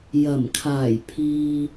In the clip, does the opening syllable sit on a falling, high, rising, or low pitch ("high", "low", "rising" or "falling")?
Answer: low